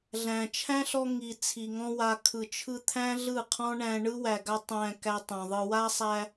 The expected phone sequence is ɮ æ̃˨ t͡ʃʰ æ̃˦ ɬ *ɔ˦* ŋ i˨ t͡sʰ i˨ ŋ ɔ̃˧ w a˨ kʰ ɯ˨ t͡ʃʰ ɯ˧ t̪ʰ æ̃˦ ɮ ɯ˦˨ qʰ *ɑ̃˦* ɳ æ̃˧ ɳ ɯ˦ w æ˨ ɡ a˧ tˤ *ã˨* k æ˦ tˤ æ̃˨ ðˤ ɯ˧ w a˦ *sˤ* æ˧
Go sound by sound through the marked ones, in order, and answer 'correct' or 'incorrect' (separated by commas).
incorrect, incorrect, incorrect, correct